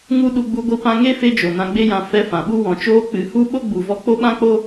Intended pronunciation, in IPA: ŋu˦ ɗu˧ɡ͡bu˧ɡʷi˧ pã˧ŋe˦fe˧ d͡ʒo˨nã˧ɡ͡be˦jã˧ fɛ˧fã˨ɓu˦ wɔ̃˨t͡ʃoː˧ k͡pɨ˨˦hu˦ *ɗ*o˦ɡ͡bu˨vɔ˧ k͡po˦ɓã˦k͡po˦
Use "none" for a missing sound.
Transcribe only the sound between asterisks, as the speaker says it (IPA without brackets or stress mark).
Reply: ɓ